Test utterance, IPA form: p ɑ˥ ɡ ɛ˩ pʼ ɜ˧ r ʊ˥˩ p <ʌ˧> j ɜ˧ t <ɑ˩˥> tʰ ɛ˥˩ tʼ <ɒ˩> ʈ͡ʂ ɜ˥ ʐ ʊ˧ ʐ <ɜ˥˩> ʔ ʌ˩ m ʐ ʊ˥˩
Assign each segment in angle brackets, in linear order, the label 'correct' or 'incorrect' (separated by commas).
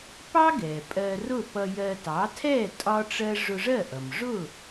correct, correct, incorrect, correct